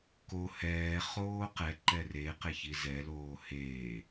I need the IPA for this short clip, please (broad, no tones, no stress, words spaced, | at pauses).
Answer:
ko hɛː χoːqɛ ǃɛre qeçizɛ loːheː